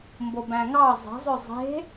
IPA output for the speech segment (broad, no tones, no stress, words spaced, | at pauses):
mbobæ̃ŋɑ zˤe̤zˤø zˤe̤